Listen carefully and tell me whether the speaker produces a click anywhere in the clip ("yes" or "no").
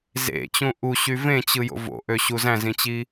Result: no